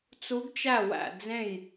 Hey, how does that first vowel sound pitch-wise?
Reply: rising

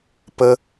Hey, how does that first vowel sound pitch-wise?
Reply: high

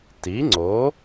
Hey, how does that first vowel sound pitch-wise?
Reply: rising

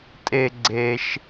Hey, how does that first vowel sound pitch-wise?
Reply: high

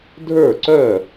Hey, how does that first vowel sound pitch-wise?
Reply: falling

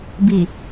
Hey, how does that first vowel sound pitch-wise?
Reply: low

